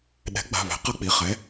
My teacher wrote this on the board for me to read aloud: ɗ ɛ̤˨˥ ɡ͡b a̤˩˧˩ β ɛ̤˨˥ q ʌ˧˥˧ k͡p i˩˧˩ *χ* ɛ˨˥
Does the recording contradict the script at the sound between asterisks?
no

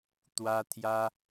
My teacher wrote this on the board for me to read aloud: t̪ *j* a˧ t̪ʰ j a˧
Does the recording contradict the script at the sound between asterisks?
yes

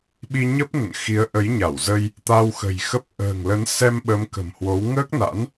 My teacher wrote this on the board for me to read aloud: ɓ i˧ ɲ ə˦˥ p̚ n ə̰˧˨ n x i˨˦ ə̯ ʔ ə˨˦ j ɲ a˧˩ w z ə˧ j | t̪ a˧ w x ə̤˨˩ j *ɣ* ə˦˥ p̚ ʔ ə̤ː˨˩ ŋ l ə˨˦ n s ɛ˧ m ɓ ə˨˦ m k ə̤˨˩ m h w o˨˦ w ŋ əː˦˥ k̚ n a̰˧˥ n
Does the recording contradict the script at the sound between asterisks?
yes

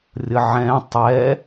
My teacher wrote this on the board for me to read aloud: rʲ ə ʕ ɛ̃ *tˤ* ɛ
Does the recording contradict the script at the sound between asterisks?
no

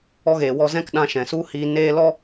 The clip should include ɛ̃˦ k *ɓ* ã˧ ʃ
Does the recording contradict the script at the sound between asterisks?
yes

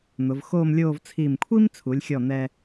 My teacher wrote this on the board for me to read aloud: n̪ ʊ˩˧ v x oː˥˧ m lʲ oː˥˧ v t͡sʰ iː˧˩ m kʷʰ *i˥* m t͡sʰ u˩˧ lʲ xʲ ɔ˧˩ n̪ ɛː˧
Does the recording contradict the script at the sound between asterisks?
no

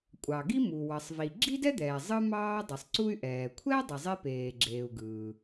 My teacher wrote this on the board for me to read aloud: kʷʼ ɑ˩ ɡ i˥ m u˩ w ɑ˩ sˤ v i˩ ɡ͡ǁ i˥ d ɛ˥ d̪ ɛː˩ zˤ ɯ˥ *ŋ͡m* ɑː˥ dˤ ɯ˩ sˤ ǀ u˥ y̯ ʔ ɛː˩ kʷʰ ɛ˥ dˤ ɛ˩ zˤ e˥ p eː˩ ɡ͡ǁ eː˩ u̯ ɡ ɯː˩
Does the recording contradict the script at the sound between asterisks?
yes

